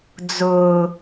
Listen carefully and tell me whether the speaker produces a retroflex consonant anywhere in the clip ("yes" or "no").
no